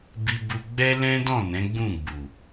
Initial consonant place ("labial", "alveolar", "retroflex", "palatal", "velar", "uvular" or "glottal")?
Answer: labial